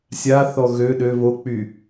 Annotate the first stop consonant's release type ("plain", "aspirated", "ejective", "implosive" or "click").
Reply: implosive